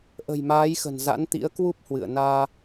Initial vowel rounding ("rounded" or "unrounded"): unrounded